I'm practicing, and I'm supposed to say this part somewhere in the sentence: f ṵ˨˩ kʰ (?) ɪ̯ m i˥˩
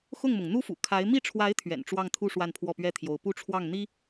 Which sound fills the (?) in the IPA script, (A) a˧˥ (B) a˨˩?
A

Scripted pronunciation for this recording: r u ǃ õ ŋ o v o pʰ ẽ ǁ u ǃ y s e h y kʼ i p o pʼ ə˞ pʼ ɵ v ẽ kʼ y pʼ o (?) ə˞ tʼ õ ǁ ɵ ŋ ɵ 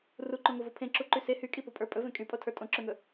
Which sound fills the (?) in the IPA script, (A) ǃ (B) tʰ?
B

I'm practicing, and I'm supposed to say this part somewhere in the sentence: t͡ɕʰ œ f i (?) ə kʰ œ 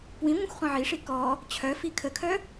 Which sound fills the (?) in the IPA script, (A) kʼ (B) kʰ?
B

